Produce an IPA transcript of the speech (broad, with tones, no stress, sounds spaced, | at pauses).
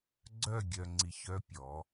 ɡ͡ǀ œ˦˨ ɡʲ œ˨ ŋ͡ǀ i˨ ç œ˦ pʲ ɔ˨˦